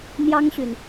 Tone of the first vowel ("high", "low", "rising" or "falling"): high